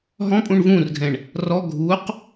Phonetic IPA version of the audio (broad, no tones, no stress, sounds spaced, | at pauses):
ɦ ɔ̃ pʼ ũ ɳ v ũː r ɡʱ ɛ̃ ɳ | r ɔ ɡʱ u q